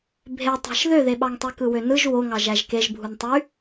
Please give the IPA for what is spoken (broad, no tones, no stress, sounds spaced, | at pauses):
bʱ e tˤ æ̤ ʃ ð ø ð e ɓ ɑ ŋ tˤ y k ɯ w ø n ɯ ʒ w o ŋ ɑ ʒ æ ʒ k e ʒ bʱ u n tˤ y